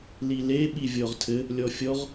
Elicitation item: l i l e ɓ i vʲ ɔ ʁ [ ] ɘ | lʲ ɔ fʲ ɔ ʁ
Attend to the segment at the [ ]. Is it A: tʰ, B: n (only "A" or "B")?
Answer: A